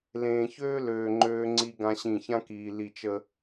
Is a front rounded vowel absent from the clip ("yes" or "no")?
no